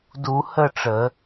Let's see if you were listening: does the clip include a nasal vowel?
no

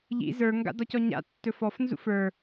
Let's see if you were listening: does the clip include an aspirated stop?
no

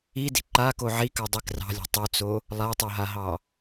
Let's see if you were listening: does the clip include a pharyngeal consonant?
yes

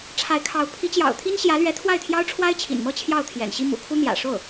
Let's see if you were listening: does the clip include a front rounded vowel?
no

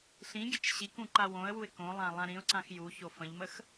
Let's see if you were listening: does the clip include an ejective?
no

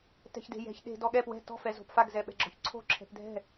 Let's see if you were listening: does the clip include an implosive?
yes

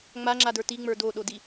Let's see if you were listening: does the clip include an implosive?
yes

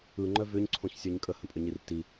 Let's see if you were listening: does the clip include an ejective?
yes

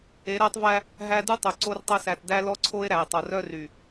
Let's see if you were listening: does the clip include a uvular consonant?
no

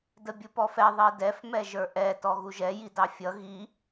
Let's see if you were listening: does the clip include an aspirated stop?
no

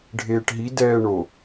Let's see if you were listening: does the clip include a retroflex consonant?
yes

